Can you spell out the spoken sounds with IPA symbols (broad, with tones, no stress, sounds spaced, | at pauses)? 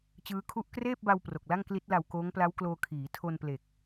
t͡ɕ ɯː˦˥ kʰ u˥˩ ʔ k r eː˥˩ p̚ b a˧ w p r o˨˩ k̚ l a˥˩ ŋ k l i˦˥ t̚ l a˧ w k oː˦˥ ŋ p l a˦˥ w k l oː˧ kʰ iː˩˦ tʰ o˧ n p l e˨˩ k̚